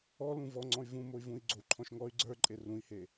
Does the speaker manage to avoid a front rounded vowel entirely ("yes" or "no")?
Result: no